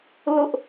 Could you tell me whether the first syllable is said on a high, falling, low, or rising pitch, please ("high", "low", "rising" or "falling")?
high